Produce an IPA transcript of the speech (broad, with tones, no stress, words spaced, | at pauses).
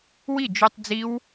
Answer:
wi˥˩d͡ʒʉ˧tˤ d͡zi˦˥w